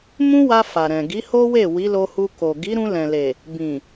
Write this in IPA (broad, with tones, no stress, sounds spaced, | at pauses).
m ũ˦ w a˧ f a˨ ɾ ɛ̃˨ ɡ i˨˦ h o˦ w e˦˨ w i˨˦ l o˧ h u˧ k o˨ ɡ i˨˦ ɾ ũ˧ l ɛ̃˨ l e˨ | b ĩ˨